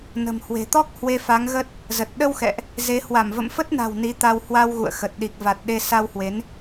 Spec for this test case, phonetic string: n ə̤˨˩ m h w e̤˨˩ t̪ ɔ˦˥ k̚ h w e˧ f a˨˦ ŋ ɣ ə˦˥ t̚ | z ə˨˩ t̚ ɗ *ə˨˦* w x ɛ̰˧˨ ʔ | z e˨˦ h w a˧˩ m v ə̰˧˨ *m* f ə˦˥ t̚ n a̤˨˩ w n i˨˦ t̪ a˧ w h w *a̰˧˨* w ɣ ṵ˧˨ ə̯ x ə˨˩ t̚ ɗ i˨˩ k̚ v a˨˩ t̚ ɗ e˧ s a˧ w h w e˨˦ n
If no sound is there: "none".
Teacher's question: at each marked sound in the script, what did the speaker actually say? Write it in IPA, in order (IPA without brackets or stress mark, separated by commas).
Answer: ə˧, m, a˧